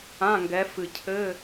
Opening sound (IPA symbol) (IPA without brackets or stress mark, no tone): ã